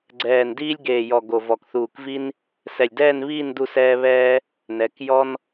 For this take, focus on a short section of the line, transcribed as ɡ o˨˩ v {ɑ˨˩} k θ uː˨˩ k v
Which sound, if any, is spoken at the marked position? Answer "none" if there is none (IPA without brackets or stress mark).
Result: ɔ˨˩